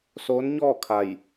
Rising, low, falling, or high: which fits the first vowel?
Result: rising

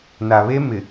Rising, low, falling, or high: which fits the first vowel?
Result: low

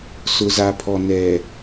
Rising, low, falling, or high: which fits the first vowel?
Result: low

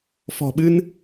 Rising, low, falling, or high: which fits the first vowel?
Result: low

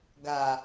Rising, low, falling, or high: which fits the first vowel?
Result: low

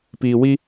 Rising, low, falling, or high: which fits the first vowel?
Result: low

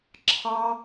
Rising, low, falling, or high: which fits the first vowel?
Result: high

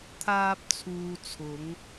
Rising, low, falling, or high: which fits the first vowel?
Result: low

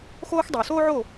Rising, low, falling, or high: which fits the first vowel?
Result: high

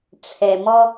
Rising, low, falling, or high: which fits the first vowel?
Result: low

